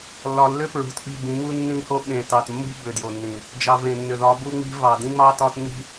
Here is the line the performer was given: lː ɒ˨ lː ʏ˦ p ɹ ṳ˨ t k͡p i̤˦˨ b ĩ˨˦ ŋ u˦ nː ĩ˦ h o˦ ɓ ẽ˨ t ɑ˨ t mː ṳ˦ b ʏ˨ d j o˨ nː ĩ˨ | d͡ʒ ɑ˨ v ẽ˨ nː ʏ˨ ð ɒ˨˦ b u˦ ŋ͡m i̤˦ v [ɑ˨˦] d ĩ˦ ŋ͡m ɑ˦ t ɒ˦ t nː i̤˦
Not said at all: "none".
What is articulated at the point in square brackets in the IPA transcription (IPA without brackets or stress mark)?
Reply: ɑ˨